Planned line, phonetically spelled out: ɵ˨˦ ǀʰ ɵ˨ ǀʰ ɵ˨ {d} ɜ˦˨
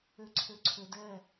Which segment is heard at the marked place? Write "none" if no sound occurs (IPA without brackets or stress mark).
d